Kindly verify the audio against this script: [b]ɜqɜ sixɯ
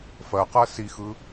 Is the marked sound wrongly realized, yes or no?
yes